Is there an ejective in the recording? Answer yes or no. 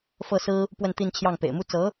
no